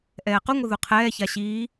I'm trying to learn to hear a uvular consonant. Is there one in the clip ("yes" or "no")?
yes